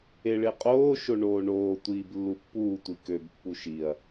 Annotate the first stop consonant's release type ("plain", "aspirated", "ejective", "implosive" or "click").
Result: ejective